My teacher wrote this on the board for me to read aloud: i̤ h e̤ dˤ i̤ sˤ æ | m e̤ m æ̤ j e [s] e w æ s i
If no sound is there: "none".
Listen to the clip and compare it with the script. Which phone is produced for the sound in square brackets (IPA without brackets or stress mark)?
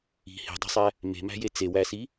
t͡s